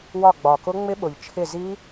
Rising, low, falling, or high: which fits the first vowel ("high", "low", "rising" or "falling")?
falling